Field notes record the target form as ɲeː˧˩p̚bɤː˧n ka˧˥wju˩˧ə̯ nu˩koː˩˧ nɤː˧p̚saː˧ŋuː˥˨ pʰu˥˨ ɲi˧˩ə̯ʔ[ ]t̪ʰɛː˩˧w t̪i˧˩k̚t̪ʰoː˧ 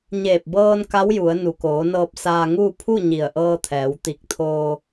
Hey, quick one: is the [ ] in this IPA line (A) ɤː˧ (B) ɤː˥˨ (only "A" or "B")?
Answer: A